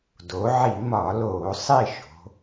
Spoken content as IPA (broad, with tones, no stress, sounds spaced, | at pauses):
d o˩˧ ʕ i˧˩˧ m ɒ˧˩˧ l oː˧˩˧ sˤ i˦˨ ʃ o̤˩˧